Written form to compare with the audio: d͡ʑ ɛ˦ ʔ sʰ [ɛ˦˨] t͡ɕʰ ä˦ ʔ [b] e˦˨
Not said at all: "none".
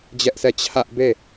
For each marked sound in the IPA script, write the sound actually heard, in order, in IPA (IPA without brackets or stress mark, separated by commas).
ɛ˦˨, b